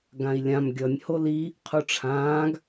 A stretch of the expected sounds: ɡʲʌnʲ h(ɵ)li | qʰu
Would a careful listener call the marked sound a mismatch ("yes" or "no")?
yes